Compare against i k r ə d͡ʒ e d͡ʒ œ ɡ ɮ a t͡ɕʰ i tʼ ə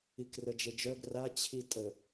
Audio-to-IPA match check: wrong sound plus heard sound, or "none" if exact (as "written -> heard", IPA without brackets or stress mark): ɮ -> r